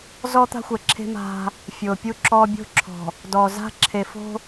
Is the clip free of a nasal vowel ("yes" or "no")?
yes